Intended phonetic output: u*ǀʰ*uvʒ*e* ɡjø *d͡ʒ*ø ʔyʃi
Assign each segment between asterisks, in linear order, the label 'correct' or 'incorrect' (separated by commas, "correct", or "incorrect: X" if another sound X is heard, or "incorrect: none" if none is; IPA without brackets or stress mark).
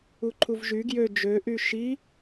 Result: incorrect: ǃʰ, incorrect: y, correct